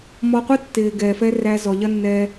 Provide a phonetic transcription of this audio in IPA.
m ɔ˧ qʷ ɯ˦ tː ɪː˨ ɡ ɛː˨ f ɛ˦ r æ˧ z ɔ˨ ʎ ɐ˦ nː ɛː˧

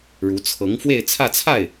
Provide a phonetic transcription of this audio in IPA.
ɻ u˧˥ t͡sʰ ɤ˧˥ ŋ f w e˥˧ ɪ̯ t͡sʰ ä˥˧ t͡sʰ a˥˩ ɪ̯

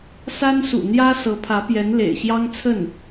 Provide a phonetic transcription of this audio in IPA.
s a˥ n s ṵ˨˩ n̪ j ä˥ s ɤ˧˥ pʰ ä˧˥ p j ɛ˧˥ n l ḛ˨˩ ɪ̯ ɕ j ɑ˥ ŋ t͡sʰ ə˥˩ n

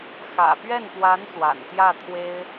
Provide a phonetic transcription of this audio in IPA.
x ä̰˨˩ p ɥ ɛ˥˩ n p w a˧˥ n s w a̰˨˩ n t̪ j ä˥˩ t̪ʰ w e˥ ɪ̯

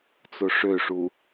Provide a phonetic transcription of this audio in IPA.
t͡s o ʂ ø ʂ u

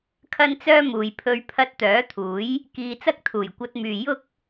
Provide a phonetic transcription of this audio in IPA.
kʰ ɐ˥ n t͡s œː˥ m uː˨ j pʰ ɵ˧ ɥ pʰ ɐ˧ t̚ t̪ œː˨˥ t̪ʰ uː˨˥ j | k iː˧ t͡s ɐ˥ k̚ t̪ʰ uː˨˩ j kʷ ɐ˧ t̚ m yː˨ j ʊ˥ k̚

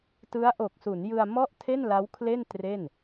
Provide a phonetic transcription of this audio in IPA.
t ɯ˦˥ a̯ ʔ o˨˩ k̚ s u˩˦ n j ɯ˧ a̯ m ɔ˥˩ ʔ tʰ e˥˩ n l a˦˥ w kʰ l e˥˩ n t r e˥˩ n

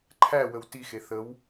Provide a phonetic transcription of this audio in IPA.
ǃʰ æ w ə w t i x e θ ə w

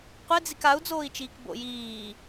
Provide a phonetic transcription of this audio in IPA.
qʷ e d͡z i k a u̯ d͡z oː i̯ t͡ʃ iː k b o̰ j iː

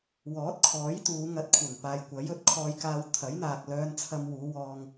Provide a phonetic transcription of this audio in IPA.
w ɔː˨˥ t̚ kʰ ɔː˨˥ j t̪ uː˨˧ ŋ ɐ˧ t̚ kʷʰ ɐ˨˩ ŋ p aː˨ j kʷ ɐ˨˥ j ɵ˨˥ t̚ kʰ ɔː˧ j k aː˧ w t̪ʰ ɐ˨˥ j n̪ aː˨ k̚ l œː˧ n t͡sʰ ɐ˧ m w uː˨˧ w ɔː˧ ŋ

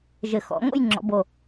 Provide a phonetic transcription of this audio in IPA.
ʒ ɘ˨˩ x ɔ̰˩˧ ŋ o̰˥˧ j ŋ͡ǁ ɔ̰˩˧ b o˨˩

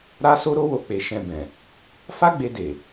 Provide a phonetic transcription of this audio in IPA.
ɾ a˦ s o˦ ɾ o˦ w o˧ k͡p e˨ ʃ ɛ̃˨ b ɛ̃˨ | f a˦ ɡ͡b e˧ d e˨

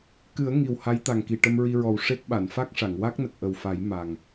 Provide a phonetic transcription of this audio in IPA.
k ɨ˨˩˦ ə̯ ŋ i˨˩ w h a˧˥ j t̪ a˨˩ ŋ k i˨˩ ʈ ə˧ m ɹ i˧ ɹ ɔ˨˩ w ʂ e˦˥ k̚ ɓ a˨˩˨ n f a˦˥ k̚ ʂ a˨˩˨ ŋ w a˦˥ k̚ n ə˨˩ k̚ ʔ ə˨˩ w f a˨˩˦ j m a˨˩ ŋ

